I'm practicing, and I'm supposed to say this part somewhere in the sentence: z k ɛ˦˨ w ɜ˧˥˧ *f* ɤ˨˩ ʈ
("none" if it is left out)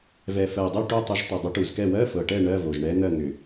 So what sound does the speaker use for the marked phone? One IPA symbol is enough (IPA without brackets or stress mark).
f